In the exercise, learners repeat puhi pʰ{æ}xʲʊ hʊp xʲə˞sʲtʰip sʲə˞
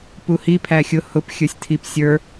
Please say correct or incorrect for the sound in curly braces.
correct